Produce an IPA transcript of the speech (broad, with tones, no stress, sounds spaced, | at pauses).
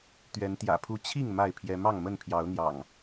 t̪ ɥ ɛ˨˦ n t̪ j ä̰˨˩ pʰ u˦ t͡ɕʰ i˥˨ ŋ m a˥˨ ɪ̯ pʰ j ɛ˦ m ɑ˥˨ ŋ m ə˥˨ n pʰ j ɑ˨˦ ʊ̯ n̪ j ɑ̰˨˩ ŋ